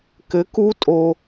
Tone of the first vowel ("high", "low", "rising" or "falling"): rising